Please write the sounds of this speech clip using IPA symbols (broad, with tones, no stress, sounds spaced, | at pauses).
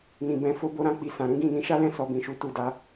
n ĩ˨ b ɛ̃˧ f o˧ b o˧ ɾ ã˧ k͡p i˧ s ã˨ ɾ ũ˨˦ ɡ ĩ˦˨ n ĩ˨˦ ʃ a˦ l ɛ̃˦˨ s ɔ˨ b ĩ˨ ʃ u˨˦ t u˦˨ d a˨˦